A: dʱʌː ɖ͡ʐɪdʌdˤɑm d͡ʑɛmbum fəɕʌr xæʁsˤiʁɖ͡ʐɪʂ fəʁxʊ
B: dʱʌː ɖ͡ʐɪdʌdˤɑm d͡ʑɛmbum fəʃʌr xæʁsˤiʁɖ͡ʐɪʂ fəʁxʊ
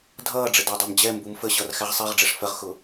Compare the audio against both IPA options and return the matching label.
A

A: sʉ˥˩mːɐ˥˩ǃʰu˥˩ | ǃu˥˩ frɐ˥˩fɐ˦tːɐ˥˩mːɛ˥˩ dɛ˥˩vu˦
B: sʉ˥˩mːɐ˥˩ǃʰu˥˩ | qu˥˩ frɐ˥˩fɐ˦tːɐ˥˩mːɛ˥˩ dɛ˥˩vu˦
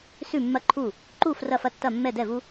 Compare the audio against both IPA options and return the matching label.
A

